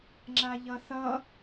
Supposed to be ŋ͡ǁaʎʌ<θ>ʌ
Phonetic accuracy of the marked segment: correct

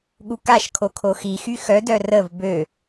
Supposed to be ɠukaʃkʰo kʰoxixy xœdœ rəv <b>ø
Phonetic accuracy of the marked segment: correct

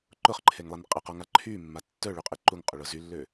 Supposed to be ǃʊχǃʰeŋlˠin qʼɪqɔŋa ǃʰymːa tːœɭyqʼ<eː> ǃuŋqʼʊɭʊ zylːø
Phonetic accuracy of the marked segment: incorrect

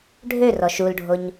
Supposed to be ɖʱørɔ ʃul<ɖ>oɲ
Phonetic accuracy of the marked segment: incorrect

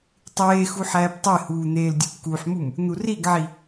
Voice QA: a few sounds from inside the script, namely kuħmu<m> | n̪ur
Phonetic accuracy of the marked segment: correct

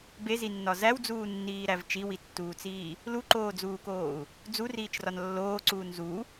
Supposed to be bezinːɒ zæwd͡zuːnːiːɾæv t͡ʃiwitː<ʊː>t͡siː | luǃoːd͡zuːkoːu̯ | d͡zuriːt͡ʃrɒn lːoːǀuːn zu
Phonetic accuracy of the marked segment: incorrect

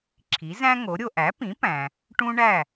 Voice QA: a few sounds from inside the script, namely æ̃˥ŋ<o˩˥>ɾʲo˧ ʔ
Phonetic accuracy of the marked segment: correct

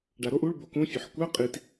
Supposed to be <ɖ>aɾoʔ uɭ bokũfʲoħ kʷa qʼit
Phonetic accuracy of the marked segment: correct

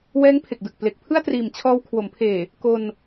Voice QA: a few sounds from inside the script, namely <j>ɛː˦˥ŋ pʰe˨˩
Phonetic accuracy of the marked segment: incorrect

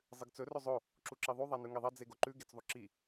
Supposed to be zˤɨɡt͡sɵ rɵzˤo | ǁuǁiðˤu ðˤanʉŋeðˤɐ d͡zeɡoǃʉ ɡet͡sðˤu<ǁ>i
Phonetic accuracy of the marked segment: correct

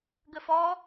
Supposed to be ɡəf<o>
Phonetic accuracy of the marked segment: incorrect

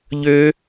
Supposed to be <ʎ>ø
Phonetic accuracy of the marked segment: correct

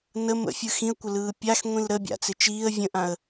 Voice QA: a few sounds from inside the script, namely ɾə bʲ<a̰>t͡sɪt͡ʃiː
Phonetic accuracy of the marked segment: correct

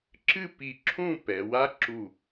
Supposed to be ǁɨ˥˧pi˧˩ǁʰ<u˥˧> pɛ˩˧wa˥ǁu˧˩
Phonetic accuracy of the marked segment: incorrect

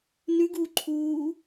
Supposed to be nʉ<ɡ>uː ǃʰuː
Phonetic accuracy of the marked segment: correct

